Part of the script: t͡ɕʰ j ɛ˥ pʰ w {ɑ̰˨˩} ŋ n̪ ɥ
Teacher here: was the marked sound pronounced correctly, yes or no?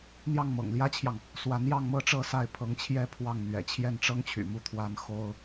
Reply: no